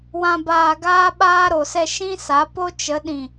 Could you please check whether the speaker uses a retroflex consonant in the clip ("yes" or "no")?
no